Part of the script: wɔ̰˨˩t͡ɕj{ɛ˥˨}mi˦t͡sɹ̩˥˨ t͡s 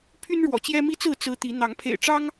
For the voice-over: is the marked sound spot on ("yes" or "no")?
no